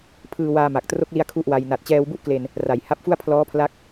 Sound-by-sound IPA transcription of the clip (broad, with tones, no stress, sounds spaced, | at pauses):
pʰ ɯː˧ w aː˧ m a˨˩ k̚ t r o˦˥ k̚ l i˧ a̯ kʰ u˥˩ ʔ w a˧ j n a˨˩ t̚ t͡ɕ ɛː˧ w b u˥˩ ʔ k l e˧ n | r a˨˩ j h a˦˥ p̚ f u˥˩ a̯ pʰ l ɔː˦˥ pʰ l a˦˥ k̚